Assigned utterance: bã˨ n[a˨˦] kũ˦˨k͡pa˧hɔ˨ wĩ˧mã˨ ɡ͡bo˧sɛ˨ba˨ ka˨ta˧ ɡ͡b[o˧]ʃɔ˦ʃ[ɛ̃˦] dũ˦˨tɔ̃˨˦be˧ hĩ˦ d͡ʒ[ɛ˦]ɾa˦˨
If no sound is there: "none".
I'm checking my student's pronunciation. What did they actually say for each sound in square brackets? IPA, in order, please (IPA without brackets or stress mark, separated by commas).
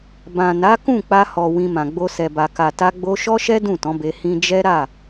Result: a˨˦, o˧, ɛ˦, ɛ˦